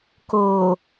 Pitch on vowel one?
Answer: low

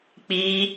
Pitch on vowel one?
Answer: high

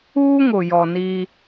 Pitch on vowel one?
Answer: high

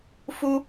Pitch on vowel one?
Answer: high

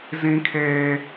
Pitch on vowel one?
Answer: high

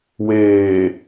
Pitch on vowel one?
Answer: low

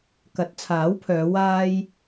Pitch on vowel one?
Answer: rising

